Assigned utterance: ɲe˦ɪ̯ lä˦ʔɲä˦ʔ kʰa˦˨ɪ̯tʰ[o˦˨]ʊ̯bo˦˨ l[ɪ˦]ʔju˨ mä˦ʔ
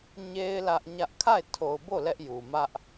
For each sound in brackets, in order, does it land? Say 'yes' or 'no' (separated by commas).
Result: no, no